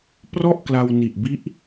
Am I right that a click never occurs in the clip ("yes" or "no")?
yes